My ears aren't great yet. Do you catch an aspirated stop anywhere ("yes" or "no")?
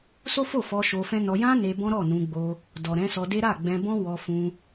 no